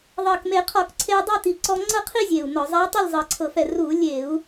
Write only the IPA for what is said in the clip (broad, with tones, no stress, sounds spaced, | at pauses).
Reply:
ðˤ ɤ˨˩ k m e˧˩˧ qʰ ɔ˧˩˧ k ǀʰ e˧ u̯ dˤ a˥˨ t̪ i˨˩ ǀ ɔ˧ ŋ͡ǀ ɤ˥˨ qʰ i˥˨ zʲ e˨˩ u̯ n ɔ˧˩˧ zˤ ɛ˧˥ tˤ e˥˨ lʲ zˤ ɤ˨˩ ǀʰ ɤ˧˩˧ f ɛ˨˩ r u˧˩˧ lʲ e˧˩˧ u̯